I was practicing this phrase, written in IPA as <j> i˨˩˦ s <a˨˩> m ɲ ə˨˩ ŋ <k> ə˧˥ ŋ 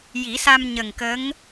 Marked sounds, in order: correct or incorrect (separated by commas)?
correct, incorrect, correct